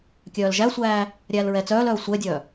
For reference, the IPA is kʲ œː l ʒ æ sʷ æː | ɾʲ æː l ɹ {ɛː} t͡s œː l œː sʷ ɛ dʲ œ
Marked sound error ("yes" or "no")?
yes